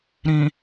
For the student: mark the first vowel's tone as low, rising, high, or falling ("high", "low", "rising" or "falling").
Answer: low